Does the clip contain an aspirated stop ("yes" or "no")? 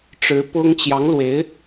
no